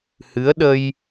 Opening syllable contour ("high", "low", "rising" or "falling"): rising